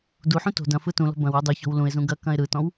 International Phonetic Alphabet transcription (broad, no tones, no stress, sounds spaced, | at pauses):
d u ħ ũ t o̤ d ɐ̃ f ɯ t ũ l ɔ̤ b ɐ̃ w u dˤ u ç ɔ̤ w l ũ ɪ̯ z ũ ɡ ɐ k ɐ̃ ɪ̯ ɾ ɯ t ɔ̃ w